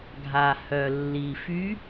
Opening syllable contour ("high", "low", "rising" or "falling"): low